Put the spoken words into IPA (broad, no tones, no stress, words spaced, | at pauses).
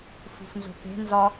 fṳfnzo̤ke̤ nzɒ